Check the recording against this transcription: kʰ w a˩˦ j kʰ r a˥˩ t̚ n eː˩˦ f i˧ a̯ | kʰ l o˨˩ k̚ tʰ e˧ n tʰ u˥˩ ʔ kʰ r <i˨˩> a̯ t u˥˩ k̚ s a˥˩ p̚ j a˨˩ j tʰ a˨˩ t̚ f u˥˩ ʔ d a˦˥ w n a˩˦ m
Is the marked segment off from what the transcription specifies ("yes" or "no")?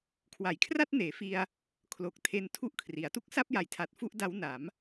yes